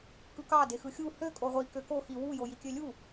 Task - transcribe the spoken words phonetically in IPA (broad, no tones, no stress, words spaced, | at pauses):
kɯkɑ dexɯxʲu hø kʼoʁʷi køko xi wu jojikʲølʲu